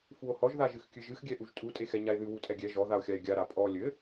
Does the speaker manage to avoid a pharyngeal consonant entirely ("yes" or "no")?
yes